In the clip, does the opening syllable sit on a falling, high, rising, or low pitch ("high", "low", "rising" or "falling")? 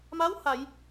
rising